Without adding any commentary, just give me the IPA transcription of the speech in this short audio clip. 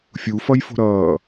fʲ u f ʌ j f o̤ ɾ ʌː

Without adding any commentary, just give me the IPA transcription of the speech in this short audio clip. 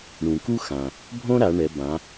ɳ ũ˩ k u˥ x ã˩ | bʱ õ˥ ɾ a˩˧ ɳ ɛ˩˧ b ã˩˧

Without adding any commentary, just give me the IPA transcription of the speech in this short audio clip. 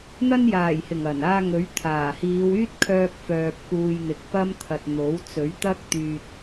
n̪ ɐ˧ n j aː˨˩ j h ɪ˨˩ ŋ ɐ˨˩ n aː˧ ŋ ɵ˨˥ ɥ t̪ʰ aː˨˩ h iː˨˧ w yː˥ t̚ kʰ œː˧ k̚ f œː˨ p̚ k uː˨ j n̪ ɪ˨ k̚ p ɐ˥ m t̪ʰ ɐ˧ t̚ n̪ o˨˥ w t͡s ɵ˨˥ ɥ t̪ ɐ˥ k̚ t̪ yː˧ t̚

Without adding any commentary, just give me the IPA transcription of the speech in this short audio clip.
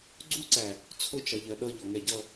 ɡ͡ǀ u ǀ æ | t͡sʰ ʊ t͡ʃ ɜ ʎ ɜ ɗ ʌ ʎ ɔ ŋ ɛ ɟ ʌ

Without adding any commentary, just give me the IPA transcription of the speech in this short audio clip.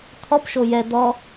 t̪ʰ ɔ p ʃ o j ɛ d̪ ɔ

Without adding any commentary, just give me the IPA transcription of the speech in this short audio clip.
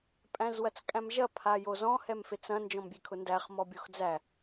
pʼ æ̃ z w ɐ t͡s kʼ æ̃ m ʒ ɐ pʰ a j o z ɔ̃ h ɛ m f e t͡s ɐ̃ n d͡ʒ ɔ̃ m bʲ e kʰ ʊ n d æ χ m ɔ bʲ o x d͡z æ

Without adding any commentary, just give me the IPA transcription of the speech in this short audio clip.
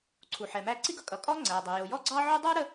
ǀʰ u˩ ħ ɛ˩ m æ˥ ǀ i˥ ɡ ʌ˥ kʼ ʌ˩ kʼ ɔ˥ ŋ͡ǀ æ˩ dˤ ə˩ j ʊ˩ j ɔ˥ ɡ͡ǀ ɑ˥ ʕ u˥ dˤ ə˞˥ ɾ ə˥

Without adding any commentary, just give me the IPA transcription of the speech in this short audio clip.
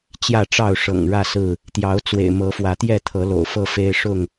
t͡ɕ j ä˥˨ ʈ͡ʂ ɑ˥˨ ʊ̯ ʂ ɤ̰˨˩ ŋ ɻ ä˥˨ s ɹ̩˥˨ | t̪ j ɑ˨˦ ʊ̯ t͡s w ḛ˨˩ ɪ̯ m ɤ˨˦ f w ä˨˦ t̪ j ɛ˥˨ t̪ʰ ɤ˨˦ l o̰˨˩ ʊ̯ f ɤ˥˨ f e˦ ɪ̯ ʂ ʊ˥˨ ŋ

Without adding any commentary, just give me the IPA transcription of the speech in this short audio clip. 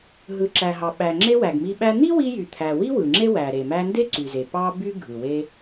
ɦ ɯ˩ ǁ æ˩ ɦ ɑ˩ ɓ æ˩ ŋ͡ǁ e˧ w æ˩ ɡ m i˧ ɓ æ˧ n̪ i˥ w i˧ j y˩ t̪ʰ æ˩ w i˥ w ɯ˩ ŋ͡ǁ e˥ w æ˩ ɾ e˩ m æ˧ n d e˥ ǀ y˩ z e˩ p ɑ˧ b y˧ ɡʱ ɯ˩ w e˧

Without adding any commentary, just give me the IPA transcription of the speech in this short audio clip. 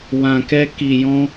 w ã˧ k ɛ˦ k i˧ j ɔ̃˦

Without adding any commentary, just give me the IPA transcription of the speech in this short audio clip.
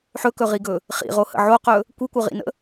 ħ ɵ k ɵ ʁ i ɡ ɵ | χ ḭ ʁ o h ə̰ ʕ o q ɵ | kʷ i kʷ ʌ ʁ ḭ n ə̰

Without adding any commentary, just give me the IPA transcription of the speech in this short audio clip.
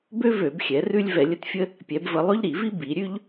b ø˥ v ø˧˩˧ b xʲ ɛ˩˧ r ʉ˥ lʲ v ɛ˧˩˧ lʲ ə˥ t fʲ ə˥ | pʲ ɛ˩˧ b v ə˧˩˧ lˠ ʉ˥ ʎ ɾ i˧˩˧ v i˥ b i˩˧ ɾʲ ʉ˥ ʎ

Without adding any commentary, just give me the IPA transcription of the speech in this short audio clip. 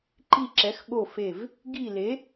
ǃ i˦˨ ǁ ɛ˨˥ x ɠ o˦˨ f e˦˨ v | ɡ i˦˨ l e˨˥

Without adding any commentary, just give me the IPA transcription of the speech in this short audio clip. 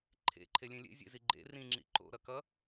ǃʰ ḛ ǃʰ e lʲ ẽ lʲ ḛ zʲ ḛ z i ɡ͡ǃ ḛ r ĩ ŋ͡ǁ ḭ ǃ o̰ ɾ ʌ k ʌ

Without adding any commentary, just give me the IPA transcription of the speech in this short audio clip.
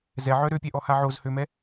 z ɛ ʕ œ ɾ ø pʲ ɛ ʔ ɔ h a ʕ o z h ø m ɛ

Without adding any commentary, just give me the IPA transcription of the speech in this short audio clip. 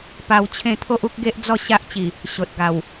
p a˧ w t͡ɕʰ ẽ˥˧ t̪ʰ o˦ ʔ u˦ k̚ ɡ e˦ ʔ d͡z ɔ˥˧ ɕ a˦ ʔ t͡ɕ i˨˩ | ɕ o˨ t̚ ɡ a˨˩ w

